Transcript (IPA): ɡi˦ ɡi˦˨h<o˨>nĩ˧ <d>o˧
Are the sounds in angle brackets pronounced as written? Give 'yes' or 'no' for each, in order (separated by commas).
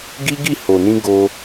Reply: yes, no